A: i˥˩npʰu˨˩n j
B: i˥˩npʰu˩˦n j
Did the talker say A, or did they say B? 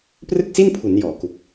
B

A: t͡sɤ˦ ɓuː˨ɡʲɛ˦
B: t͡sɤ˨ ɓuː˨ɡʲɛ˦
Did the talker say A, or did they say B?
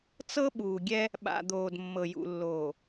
A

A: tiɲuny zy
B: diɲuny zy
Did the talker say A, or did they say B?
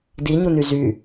B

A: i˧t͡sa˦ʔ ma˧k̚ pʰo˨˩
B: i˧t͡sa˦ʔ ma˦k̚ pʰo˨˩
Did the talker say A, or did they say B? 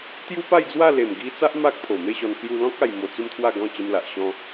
B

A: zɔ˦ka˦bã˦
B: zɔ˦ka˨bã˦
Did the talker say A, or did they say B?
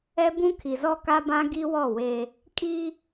A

